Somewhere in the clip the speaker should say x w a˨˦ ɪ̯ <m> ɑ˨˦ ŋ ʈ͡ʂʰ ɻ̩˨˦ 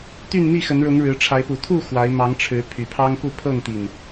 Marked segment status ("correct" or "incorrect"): correct